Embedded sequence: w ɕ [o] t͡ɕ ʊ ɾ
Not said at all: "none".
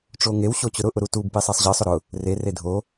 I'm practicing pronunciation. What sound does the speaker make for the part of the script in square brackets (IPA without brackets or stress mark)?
o